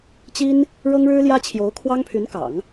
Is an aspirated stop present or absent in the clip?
present